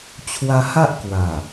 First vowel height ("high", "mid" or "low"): low